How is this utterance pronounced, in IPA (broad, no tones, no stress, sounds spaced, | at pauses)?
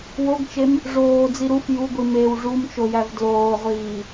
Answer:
w o ɡ t͡ʃ e m | ʐ oː d͡z i ɾ u f j u ɡʷ i m e w ʐ u m t͡ʃ o j æ v d l oː ʁʷ iː